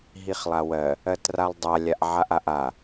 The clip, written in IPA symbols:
ɦ i χ lˠ a w ɜ | ɜ t r a lˠ dˤ a lʲ a ʔ ʕ a ʔ a ʔ a

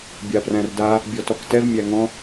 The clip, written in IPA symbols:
bʲ a p r æ̃ r d a | bʲ ɔ t ɔ k t ɛ v mʲ æ ŋ ɔ̃

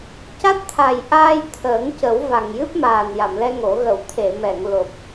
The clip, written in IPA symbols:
c a˦˥ t̚ t̪ʰ a˨˩ j ʔ aː˧ j t̪ʰ əː˨˩˦ ŋ c ə˨˩˦ w v a˨˩ ŋ j ɨ˦˥ p̚ m aː˨˩ n j a˨˩˨ m l ɛ˧ ŋ o˨˩˦ ɣ ə˨˩˨ w t̪ʰ e˨˩˨ m ɛ˨˩˨ ŋ l o˨˩ p̚

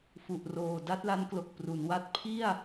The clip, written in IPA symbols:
f u˨˩ ʔ r oː˨˩ d a˥˩ t̚ l a˦˥ n k l o˨˩ k̚ p r u˩˦ n w a˦˥ t̚ pʰ i˥˩ a̯

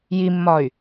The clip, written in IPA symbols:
j i mː ɒ y̯

